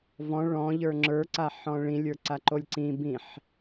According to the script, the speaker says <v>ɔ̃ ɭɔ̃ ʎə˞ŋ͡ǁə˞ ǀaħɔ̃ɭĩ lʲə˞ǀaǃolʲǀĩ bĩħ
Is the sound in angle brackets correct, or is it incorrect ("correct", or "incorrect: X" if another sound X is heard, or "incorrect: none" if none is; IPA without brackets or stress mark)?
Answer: correct